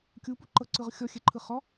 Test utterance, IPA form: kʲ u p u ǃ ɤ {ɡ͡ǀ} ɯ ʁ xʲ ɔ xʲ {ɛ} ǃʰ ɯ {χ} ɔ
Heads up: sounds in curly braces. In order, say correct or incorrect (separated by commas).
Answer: incorrect, correct, correct